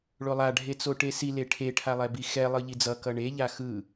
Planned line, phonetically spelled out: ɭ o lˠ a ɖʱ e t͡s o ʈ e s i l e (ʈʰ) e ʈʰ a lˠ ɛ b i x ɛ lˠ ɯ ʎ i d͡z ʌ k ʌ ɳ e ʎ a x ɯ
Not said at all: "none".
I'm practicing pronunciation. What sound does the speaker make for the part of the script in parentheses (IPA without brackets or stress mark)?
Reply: ʈʰ